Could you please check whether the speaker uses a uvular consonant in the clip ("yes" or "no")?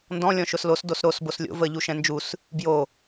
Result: no